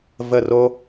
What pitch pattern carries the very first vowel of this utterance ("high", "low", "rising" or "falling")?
falling